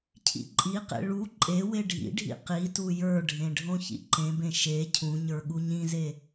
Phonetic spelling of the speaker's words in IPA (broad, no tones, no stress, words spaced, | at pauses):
cʰḭǃʼiqḛ ɭu ǃʼe weɖʱḭɖʱḭ qitu jə˞ɖʱẽ ɖʱõçḭǃẽbẽ ʃe cʰũɲə˞ ɠuɲĩze